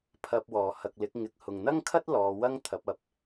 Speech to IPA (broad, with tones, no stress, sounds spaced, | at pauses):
pʰ ɐ˧ p̚ w ɔː˨˩ h ɐ˨ k̚ l ɪ˨˥ k̚ ŋ ɪ˧ k̚ h ʊ˨ ŋ n̪ ɐ˥ ŋ kʰ ɐ˥ t̚ l ɔː˨˧ w ɐ˥ ŋ t̪ʰ ɐ˨˥ p̚ ɐ˨ p̚